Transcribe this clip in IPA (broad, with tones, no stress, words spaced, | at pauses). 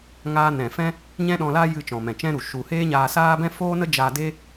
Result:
ŋaː˦ nɛ̃˨fɛ̃˦ | ɲɛ̃˦ɗɔ̃˧la˦ jɨ˧ t͡ʃɔ̃˨mɛ̃˨t͡ʃɛ̃˦ɾu˨ ʃu˧ heː˦ɲaː˧saː˦bɛ̃˦ foː˦nə˦ d͡ʒaː˧de˦